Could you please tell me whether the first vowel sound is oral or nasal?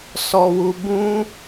oral